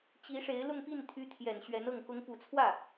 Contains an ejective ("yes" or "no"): no